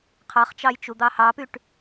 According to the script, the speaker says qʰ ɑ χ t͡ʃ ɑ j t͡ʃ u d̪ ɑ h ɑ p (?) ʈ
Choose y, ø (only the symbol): y